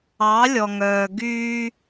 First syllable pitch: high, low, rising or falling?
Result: rising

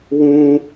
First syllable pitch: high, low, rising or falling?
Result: low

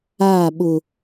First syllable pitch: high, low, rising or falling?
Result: falling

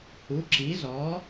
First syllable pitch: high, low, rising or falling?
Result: rising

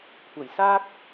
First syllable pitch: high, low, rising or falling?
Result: low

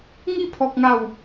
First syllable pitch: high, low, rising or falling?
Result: falling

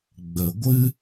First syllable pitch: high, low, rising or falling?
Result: low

